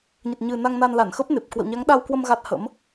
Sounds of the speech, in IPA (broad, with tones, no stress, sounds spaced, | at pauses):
ɲ ə˨˩ t̚ ɲ ɨ˨˩ n a˧ ŋ n a˧ n l a˧˩ n x ə˦˥ p̚ n e˨˩ p̚ k w ə̰˧˨ w ɲ a˨˦ ŋ ɗ a˧ w k w ə˧ m ɣ a˦˥ t̚ h ə̰˧˥ m